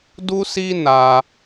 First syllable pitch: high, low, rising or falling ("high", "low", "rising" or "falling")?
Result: high